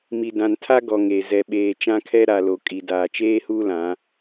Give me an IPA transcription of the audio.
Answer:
mi˨dã˨n tʰa˦ ɡɔ˨ŋe˨ zɛ˨ɓeː˨ t͡ʃã˦kʰɛ˦ ɾa˨lo˨ kʼi˨daː˨ t͡ʃeː˦huː˦lã˨˦

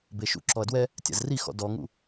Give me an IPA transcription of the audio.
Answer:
beʃṵ ǁɔɐ̯dwɛ | tʲa̰zrixɔ̰ dɔŋṵ

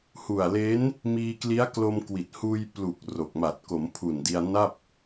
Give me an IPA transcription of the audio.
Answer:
hu˨˩a̯le˦˥n | miː˧kli˦˥a̯ klo˧mkwi˨˩t̚ huː˧jplu˨˩k̚ ro˨˩k̚ ma˨˩t̚ko˩˦mpʰu˨˩n di˧a̯na˥˩p̚

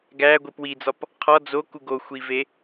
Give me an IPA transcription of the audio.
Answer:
ɡæɡʷip wid͡zɒp | qʰɒ d͡zoku ɡoxʷive

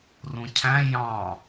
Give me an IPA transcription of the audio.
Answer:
rũcʰæ̃ jɑ̃

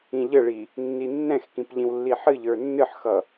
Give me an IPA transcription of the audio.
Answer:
ĩʎəɭi | nːinːɛ̃xkĩp ʎĩwlːiħɨʎə˞ nːɨħxʌ

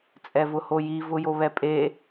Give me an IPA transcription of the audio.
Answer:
t͡sʼɛvʊhoji vʊjoβɛpʼe

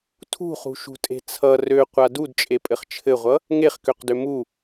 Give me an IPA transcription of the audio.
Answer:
tʰṳχṳʃṳtʼe̤ t͡sʰʌ røqʷa dudt͡ʃʼepʼɘχ t͡ʃʰɘʁʷʌ | ŋeχkøqdø mu

